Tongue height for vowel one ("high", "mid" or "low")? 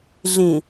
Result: high